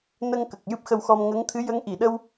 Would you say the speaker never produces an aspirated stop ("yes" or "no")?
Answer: no